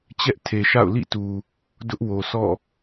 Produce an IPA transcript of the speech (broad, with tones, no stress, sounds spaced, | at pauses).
t͡ɕ ɛ˦ ʔ tʰ e˨ ʃ a̰˦˨ ʊ̯ l ḭ˦˨ t u˨ | d ʊ˦ ʔ w o˨ sʰ ɔ̰˦˨